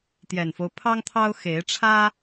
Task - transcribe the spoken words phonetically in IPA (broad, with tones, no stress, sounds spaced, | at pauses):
t̪ j ɛ˨˩ n f o˦ ʊ̯ pʰ ɑ˦ ŋ t̪ʰ ɑ˦ ʊ̯ x e˨˦ ɪ̯ ʈ͡ʂʰ ä˦